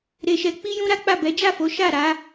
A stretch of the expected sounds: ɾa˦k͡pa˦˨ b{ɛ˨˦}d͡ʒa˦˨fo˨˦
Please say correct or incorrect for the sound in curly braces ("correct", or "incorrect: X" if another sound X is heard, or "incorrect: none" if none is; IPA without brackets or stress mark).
correct